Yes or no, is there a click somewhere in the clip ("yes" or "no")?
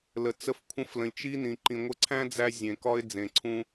yes